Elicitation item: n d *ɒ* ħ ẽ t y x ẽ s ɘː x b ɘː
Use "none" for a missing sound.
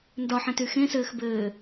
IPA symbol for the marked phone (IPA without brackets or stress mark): ɒ